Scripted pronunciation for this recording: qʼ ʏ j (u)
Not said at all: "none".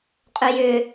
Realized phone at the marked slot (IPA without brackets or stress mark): ʏ